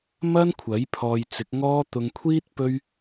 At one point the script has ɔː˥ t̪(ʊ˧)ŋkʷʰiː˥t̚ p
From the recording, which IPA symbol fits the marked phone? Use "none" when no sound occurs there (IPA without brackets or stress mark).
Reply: ʊ˧